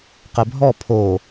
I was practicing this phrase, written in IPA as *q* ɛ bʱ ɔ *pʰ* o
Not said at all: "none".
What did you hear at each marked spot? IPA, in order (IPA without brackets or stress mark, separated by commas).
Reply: q, pʰ